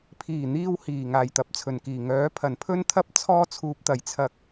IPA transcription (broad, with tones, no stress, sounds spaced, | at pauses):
pʰ iː˨˩ n̪ iː˧ w h iː˨˩ ŋ aː˨˩ j t̪ ɐ˨˥ p̚ t͡sʰ ɵ˨˩ n k iː˨˩ ŋ œː˨˥ pʰ ɐ˨˩ n pʰ ɵ˥ n t̪ʰ ɐ˥ p̚ t͡sʰ ɔː˥ t͡sʰ uː˧ p̚ t̪ ɐ˨ j t͡sʰ ɐ˧ k̚